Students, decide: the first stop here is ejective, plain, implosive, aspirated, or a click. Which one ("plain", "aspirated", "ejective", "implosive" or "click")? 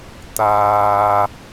plain